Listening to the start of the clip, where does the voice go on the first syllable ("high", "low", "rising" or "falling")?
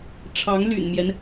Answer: rising